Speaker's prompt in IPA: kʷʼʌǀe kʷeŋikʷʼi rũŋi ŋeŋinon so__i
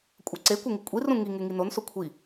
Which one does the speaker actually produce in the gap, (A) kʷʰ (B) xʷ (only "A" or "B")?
A